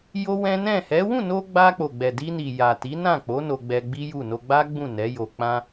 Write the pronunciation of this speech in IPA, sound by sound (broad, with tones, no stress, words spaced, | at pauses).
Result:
jo˦wɛ̃˦ nɛ̃˦˨ hɛ˨˦ wũ˦˨no˧ ɡ͡ba˧k͡po˨ɡ͡bɛ˨ di˧ni˨ja˨ ti˨˦nã˦˨k͡po˨˦ no˧ɡ͡bɛ˧ɡ͡bi˦ju˦˨ no˧ɡ͡ba˦ ɡ͡bũ˦˨nɛ˨˦jo˧ k͡pã˦